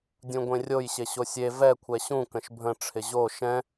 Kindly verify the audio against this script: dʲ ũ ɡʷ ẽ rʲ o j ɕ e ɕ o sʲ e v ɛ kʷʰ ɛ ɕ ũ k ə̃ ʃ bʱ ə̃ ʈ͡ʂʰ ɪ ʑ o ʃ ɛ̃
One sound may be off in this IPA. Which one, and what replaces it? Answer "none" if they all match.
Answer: none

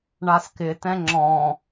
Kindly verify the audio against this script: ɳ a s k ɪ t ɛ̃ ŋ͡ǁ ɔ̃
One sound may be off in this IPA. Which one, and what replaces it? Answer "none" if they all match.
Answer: none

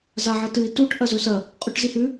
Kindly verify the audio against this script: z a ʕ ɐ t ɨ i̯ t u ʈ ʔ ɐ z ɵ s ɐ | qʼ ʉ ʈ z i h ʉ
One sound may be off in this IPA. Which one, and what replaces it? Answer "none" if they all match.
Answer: none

